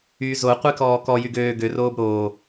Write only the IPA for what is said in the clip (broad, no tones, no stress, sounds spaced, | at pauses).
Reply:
y z o qʷ i k ɔː k ɔ j y ɡ øː ɡ ø r oː b ɾ oː